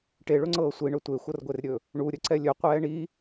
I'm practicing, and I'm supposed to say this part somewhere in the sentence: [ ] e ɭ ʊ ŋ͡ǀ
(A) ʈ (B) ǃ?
A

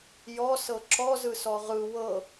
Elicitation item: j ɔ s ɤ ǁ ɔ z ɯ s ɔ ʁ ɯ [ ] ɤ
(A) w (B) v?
A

